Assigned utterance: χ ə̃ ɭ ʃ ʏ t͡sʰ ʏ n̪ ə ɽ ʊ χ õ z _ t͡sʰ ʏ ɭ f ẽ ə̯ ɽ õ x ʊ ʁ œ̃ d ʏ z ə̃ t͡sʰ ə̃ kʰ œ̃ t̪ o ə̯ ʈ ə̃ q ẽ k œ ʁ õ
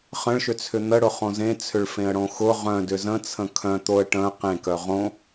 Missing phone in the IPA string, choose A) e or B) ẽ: B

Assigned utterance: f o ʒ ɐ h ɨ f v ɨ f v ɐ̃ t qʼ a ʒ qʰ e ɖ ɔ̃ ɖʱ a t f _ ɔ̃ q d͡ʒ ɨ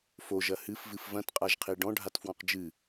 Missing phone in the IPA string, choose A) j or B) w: B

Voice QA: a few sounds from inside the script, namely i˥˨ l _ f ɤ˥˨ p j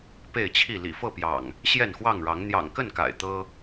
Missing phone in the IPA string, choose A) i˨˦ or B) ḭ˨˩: B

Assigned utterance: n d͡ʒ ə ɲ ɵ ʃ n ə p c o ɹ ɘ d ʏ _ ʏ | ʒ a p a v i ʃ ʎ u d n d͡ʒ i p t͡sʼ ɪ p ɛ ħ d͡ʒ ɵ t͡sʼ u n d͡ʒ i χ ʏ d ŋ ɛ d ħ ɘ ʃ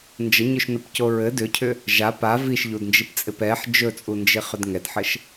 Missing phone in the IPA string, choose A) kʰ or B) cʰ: B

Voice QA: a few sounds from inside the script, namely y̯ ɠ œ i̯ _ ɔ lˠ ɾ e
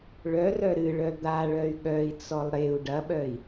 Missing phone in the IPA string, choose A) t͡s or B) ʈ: A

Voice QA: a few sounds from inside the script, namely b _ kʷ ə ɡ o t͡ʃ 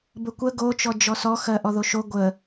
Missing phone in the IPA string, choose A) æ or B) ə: B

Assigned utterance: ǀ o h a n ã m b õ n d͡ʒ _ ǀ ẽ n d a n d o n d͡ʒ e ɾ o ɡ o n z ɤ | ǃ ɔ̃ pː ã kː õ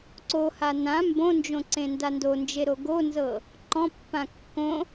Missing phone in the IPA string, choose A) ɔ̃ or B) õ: B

